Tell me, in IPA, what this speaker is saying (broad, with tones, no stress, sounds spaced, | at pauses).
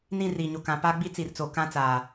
n ĩ˦˨ r i˨ ɲ o˨ k ã˨ p a˦ ɡ͡b i˦ t͡s i˨ r t͡s o˨ k ã˦ t͡s aː˨